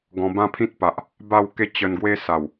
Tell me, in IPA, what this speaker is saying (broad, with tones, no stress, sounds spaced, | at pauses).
ɡ ɔ̃˧ b ã˦ pʰ ĩ˦ t̚ p a˨ ʔ | b a˥˧ w k e˥˧ t͡ɕ ə˧ n ɡ w e˦ s a˨˩ w